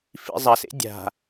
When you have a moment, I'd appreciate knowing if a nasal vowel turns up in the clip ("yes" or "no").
no